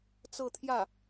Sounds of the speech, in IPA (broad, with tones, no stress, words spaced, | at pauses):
t͡sɤ˥˧t̪ʰjä˥˩